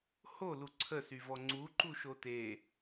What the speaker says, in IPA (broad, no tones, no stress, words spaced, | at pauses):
holu ǀʰəsyvɔ ŋ͡ǀuǃuʃo te